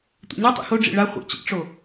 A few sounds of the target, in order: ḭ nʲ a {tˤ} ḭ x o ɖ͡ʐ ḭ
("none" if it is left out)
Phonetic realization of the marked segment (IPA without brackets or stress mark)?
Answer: tˤ